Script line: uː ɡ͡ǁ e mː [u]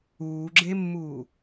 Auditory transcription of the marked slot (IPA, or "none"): uː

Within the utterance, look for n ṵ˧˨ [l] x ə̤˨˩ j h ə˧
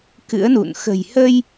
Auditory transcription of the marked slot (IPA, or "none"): n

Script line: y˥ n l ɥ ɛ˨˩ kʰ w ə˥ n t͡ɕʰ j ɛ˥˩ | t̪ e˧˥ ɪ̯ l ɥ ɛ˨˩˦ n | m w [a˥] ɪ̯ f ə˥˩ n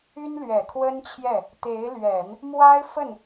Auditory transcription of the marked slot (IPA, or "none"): a˥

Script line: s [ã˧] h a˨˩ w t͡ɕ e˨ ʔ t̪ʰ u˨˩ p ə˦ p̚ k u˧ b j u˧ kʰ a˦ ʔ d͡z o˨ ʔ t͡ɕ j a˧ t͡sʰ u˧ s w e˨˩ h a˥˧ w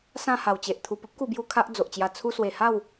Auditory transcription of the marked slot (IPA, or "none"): ã˥˧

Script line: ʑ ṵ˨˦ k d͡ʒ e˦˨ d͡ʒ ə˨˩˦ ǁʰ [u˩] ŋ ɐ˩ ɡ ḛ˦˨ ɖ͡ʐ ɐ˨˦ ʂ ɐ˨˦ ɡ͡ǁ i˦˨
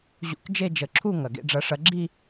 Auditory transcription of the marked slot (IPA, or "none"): u˦˨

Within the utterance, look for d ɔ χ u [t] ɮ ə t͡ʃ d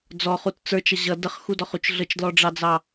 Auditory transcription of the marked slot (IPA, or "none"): t͡ʃ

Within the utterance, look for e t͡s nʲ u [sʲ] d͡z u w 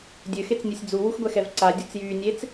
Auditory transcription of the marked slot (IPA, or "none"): sʲ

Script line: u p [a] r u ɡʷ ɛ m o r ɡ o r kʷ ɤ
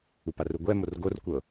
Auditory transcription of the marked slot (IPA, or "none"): a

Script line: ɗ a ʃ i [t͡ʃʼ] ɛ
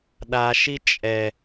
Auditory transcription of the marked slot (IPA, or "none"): t͡ʃʼ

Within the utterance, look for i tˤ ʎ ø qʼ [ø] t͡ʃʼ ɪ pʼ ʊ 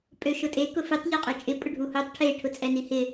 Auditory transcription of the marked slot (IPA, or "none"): ø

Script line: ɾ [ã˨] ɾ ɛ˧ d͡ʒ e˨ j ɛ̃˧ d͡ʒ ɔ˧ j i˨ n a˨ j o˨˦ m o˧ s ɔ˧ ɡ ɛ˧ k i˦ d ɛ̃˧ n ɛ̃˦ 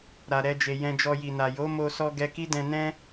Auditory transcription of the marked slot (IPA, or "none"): a˨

